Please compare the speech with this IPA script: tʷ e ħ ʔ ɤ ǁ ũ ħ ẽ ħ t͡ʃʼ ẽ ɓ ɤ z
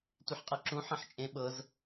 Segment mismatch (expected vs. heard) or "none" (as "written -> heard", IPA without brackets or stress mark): ʔ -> qʼ